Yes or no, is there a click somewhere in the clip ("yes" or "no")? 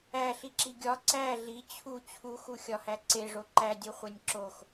yes